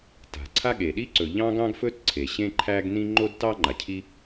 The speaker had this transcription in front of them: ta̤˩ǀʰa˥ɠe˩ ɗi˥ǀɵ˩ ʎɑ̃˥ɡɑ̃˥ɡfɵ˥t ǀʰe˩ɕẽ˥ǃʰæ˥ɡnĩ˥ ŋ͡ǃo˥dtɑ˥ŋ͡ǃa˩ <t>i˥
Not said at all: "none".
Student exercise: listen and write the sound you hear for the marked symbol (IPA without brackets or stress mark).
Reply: cʰ